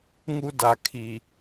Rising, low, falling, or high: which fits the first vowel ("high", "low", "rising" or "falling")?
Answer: high